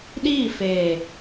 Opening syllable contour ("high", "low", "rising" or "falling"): falling